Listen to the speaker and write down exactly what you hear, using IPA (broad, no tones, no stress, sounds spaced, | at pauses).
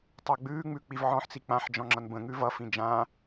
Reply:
tˤ a ɡ͡b ʉː ŋ͡m ʉ k͡p i v ʕ ɔ̃ ħ t͡s i k͡p ã ħ d͡ʒ ɔ̃ ŋ͡ǁ ʌ n b ə̃ ŋ ʉ v ʌ f ĩ d͡ʒ ã